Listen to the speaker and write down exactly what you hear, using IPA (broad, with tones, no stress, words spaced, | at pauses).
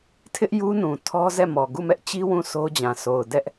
tʰɪ˦ʔ ju˦nũ˨ tʰɔ˦zɛ˦˨mɔ˨ ɡu˦˨mɛ˦ʔt͡ɕi˦ wũ˦˨sʰo˦d͡ʑã˨ so˨ʊ̯dɛ˦ʔ